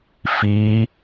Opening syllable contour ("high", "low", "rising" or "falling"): rising